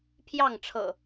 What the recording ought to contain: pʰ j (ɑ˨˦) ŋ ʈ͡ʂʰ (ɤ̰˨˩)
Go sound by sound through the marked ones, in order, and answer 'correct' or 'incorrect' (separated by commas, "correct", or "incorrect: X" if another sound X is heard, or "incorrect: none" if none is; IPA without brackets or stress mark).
incorrect: ɑ˥˨, correct